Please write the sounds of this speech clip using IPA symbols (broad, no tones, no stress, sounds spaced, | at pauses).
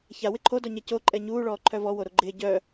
ç a w ɪ ǃʰ o d ɔ ɲ ɛ c o ǃʼ ɛ ɲ uː ɭ ɔː ǃʰ œ v ɔ w o ɾ o ɡ͡ǃ ɪː ɟ œ